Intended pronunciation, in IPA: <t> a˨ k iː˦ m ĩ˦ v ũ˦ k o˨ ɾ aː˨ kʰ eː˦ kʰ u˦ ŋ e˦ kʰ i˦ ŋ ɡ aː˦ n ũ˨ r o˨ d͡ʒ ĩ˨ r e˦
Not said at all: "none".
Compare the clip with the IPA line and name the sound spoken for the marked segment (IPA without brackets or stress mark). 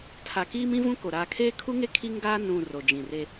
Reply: tʰ